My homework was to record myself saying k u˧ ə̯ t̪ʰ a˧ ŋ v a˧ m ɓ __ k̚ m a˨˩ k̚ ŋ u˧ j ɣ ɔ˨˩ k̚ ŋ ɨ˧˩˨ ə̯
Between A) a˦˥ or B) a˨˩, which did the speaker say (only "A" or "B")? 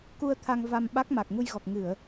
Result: A